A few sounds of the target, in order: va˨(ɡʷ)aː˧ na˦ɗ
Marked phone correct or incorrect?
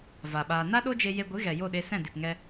incorrect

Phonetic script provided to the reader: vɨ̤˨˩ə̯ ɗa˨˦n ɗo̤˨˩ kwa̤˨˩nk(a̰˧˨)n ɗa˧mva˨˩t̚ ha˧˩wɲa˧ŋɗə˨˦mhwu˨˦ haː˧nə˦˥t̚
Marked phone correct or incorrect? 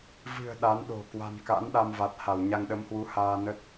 incorrect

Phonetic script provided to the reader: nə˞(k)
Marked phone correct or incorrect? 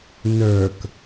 correct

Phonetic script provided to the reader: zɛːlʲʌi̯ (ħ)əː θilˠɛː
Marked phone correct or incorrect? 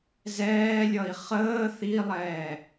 incorrect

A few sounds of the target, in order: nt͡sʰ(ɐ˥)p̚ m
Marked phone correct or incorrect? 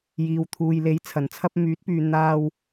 correct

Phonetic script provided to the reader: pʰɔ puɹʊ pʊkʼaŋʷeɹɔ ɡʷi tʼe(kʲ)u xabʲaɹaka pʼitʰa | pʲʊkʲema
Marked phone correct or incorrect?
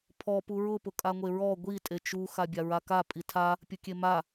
incorrect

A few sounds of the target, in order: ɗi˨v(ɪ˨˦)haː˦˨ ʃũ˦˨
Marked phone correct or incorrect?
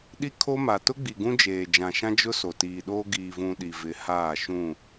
correct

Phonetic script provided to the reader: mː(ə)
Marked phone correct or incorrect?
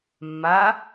incorrect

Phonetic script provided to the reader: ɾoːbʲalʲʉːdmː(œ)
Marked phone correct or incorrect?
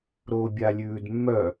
correct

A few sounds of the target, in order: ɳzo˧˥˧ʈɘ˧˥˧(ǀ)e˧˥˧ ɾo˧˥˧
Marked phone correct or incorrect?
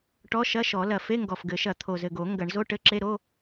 incorrect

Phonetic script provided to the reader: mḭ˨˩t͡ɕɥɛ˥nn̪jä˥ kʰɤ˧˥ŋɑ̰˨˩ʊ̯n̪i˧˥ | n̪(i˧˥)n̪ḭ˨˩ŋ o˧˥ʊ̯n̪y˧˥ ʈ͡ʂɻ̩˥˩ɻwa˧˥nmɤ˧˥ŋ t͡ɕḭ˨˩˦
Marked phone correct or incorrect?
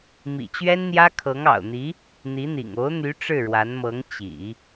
correct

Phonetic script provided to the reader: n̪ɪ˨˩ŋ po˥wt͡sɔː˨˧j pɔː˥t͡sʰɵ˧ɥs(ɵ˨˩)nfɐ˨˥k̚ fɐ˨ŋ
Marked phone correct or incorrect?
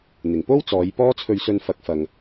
incorrect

